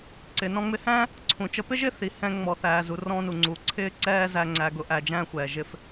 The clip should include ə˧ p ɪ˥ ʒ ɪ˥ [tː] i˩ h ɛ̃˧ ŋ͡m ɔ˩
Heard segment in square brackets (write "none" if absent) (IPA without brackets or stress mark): θ